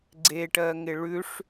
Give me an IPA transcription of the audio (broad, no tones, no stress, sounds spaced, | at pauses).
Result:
ɡ͡ǀ e ʈ ɜ ŋ ɪ ɭ ʉ ʂ